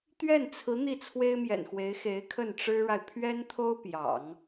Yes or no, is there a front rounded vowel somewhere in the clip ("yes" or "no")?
no